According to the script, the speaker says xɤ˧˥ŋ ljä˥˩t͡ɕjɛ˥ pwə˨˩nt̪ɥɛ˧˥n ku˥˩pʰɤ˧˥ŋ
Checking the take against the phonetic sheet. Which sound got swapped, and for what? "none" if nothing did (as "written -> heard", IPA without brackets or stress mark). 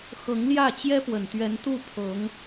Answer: k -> t̪